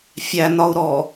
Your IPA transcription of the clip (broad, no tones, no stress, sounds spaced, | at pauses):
fʲ æ n ɒ u̯ ɾ ɔ